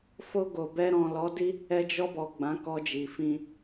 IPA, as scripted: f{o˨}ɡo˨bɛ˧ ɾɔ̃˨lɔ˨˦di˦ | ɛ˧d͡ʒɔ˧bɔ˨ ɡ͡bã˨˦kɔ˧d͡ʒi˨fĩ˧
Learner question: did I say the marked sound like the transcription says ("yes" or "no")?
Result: no